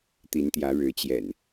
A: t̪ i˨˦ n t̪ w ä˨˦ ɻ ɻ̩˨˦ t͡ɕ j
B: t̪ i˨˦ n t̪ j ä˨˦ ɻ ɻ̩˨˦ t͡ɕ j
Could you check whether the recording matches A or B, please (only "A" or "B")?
B